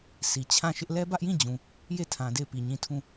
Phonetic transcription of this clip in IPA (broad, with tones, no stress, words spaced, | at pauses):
sʰi˨ t͡ɕʰã˦˨ʃɪ˦ʔ lɛ˦bä˦ʔjĩ˦˨d͡ʑũ˨ | je˦˨tʰã˨ de˦˨ɪ̯pi˨ɲĩ˦˨ tʰũ˦˨